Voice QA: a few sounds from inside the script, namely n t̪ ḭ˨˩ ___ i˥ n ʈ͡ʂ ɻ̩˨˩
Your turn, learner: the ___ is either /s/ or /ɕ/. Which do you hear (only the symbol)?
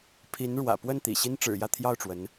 ɕ